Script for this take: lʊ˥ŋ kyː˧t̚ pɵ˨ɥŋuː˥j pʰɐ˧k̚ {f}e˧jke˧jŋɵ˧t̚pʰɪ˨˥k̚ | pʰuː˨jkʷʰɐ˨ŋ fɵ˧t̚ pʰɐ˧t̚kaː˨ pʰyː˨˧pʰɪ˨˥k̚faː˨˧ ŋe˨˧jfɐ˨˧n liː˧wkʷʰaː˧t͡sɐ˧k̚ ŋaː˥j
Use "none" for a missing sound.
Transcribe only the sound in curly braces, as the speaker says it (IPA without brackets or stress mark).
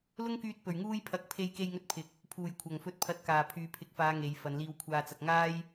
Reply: pʰ